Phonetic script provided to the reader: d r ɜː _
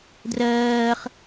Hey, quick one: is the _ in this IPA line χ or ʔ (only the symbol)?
χ